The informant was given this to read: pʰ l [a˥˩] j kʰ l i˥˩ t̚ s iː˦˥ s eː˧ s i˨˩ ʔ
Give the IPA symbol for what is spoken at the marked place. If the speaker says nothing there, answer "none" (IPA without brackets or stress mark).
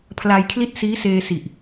a˧